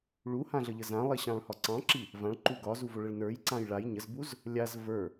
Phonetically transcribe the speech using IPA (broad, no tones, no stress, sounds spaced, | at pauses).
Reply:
ɭ u h ã ɮ ə ʎ ə z ã lˠ i ɕ ɑ̃ ɭ h ɒ ǀ ɑ̃ ǁ i | v ã ɭ ǃ u ɡ ɒ z u v o ɭ ə ɭ n ə˞ j ǀ ã j ɭ a j ɲ ə z b u z | lʲ a z v ə˞